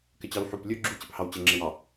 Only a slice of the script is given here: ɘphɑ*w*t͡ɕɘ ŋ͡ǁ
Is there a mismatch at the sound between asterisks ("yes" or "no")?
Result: no